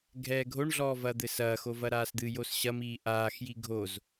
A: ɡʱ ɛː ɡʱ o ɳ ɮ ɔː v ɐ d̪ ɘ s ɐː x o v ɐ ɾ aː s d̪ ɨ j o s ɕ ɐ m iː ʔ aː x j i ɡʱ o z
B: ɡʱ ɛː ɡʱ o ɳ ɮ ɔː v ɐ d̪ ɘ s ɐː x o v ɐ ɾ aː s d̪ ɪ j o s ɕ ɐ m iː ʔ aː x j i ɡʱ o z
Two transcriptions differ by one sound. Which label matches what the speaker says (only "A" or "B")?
A